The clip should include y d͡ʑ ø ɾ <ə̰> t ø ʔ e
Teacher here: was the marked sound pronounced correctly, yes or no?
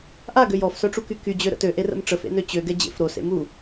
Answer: yes